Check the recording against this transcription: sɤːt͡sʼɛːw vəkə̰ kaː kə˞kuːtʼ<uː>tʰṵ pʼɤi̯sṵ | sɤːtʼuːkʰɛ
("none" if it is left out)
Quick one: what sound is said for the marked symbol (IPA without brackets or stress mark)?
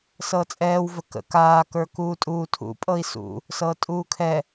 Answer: uː